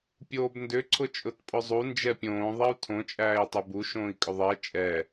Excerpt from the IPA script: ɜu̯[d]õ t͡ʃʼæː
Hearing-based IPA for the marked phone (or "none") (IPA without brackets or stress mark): tʰ